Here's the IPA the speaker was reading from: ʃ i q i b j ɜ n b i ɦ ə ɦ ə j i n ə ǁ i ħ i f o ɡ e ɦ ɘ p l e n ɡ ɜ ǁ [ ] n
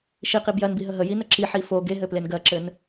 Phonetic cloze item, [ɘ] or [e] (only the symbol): ɘ